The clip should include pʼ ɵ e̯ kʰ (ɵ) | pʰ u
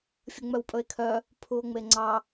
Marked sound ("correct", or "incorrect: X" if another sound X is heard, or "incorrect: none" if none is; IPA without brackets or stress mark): incorrect: œ